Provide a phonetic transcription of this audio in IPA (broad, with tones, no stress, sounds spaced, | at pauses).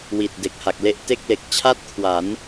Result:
w i˨˩ t̚ d e˨˩ k̚ h a˨˩ k̚ l e˥˩ ʔ t e˥˩ k̚ l e˨˩ k̚ t͡ɕʰ a˥˩ t̚ kʰ w a˩˦ n